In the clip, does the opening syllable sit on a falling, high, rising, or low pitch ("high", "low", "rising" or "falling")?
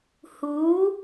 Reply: rising